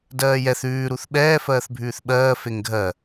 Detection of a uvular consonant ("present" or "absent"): absent